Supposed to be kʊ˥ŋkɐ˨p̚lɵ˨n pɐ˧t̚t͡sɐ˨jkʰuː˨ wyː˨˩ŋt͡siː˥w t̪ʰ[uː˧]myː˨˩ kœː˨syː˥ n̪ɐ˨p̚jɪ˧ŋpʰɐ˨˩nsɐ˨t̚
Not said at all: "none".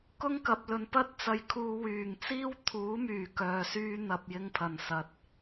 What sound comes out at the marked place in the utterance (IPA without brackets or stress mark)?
uː˨˥